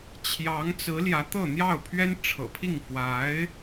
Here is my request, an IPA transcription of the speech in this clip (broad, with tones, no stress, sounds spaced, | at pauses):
t͡ɕʰ j ɑ˧˥ ŋ t͡s ɹ̩˧˥ l j ä˧˥ t̪ ɤ˥˧ n̪ j ɑ˥˩ ʊ̯ pʰ ɥ ɛ˥ n ʈ͡ʂʰ ɤ̰˨˩ pʰ i˥˩ ŋ f w a˧˥ ɪ̯